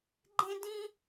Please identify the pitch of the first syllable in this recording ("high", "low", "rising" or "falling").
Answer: high